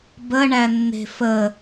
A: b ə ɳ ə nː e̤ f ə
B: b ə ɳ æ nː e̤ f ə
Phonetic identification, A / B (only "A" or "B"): B